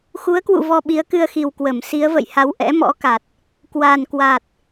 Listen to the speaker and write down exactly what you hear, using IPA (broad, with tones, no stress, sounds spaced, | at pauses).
x u˨˦ ə̯ k w ṵ˧˨ v ɔ˧ ɓ i˨˦ ə̯ k ɨ˧ ə̯ x i˨˩ w k w ə˧˩ m s i˨˦ ə̯ v ə̰˧˨ j h a˨˦ w ʔ ɛ̰˧˥ m ɔ̰˧˥ k a˨˩ t̚ | k w a˨˩ n k w a˨˩ t̚